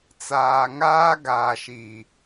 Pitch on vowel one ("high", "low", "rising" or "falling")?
low